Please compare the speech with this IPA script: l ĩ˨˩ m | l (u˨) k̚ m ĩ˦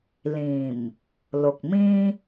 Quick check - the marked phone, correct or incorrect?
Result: incorrect